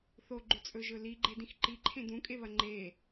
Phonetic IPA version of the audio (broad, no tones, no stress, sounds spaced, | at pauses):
θ o ɡ͡ǃ ʉ t͡sʼ ɵ ʒ ɵ l i ɡ͡ǃ e d ĩ x ǃ i ǃʰ ẽ d ũ kʼ e β ɐ ŋ͡ǃ e